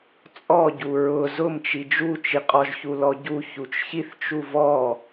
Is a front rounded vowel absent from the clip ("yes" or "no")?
yes